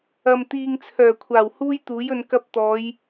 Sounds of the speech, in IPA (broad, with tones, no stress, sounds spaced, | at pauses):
ɐ˨ m t̪ iː˨ ŋ t͡sʰ œː˨˩ kʷʰ aː˨˩ w h uː˥ j t̪ uː˨˥ j ɵ˨˧ n k ɐ˧ p̚ t̪ ɔː˨˧ j